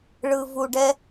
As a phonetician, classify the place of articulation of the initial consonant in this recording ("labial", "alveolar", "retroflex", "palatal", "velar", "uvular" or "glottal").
retroflex